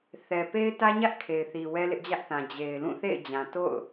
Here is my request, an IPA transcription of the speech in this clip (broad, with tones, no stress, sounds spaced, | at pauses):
θ ɛ˨ p e˦ ɪ̯ t ä˦ ɲ ä˦ ʔ kʰ e˨ ɪ̯ θ i˨ w ɛ˦ l ɪ˦ ʔ d͡ʑ ä˦ ʔ θ ã˨ d͡ʑ e˨ ɪ̯ l ũ˦˨ θ ḛ˦˨ ɪ̯ d͡ʑ ã˨ t o̰˦˨ ʊ̯